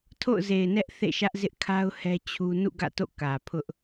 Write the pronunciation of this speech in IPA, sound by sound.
tʰo̰˦˨ʊ̯ze˨ɪ̯nɛ˦ʔ θḛ˦˨ʃä˦ʔzɪ˦ʔkʰa˦ʊ̯ hɛ˦t͡ɕʰu˦ nṵ˦˨ɡä̰˦˨to̰˦˨ kä˨pʰʊ˦ʔ

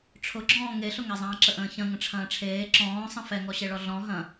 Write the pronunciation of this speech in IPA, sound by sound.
ʈ͡ʂʰʊɡ͡ǁɔ̃ː ŋeɬʊŋɛzˤɐ̃ː ǁəʔə̃ːçɐ̃ ŋə̃ʈ͡ʂʰɐ̃ːʈ͡ʂʰeː ǁɔ̃ːsˤə̃ fɛŋɔɕeɭɔ ɮɔ̃ ɦɐ̃

